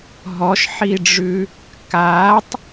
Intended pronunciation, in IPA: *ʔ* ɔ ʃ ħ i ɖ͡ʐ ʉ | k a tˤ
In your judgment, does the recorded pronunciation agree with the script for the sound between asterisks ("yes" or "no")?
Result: no